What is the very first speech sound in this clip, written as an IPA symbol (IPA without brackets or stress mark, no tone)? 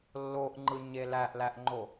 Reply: lː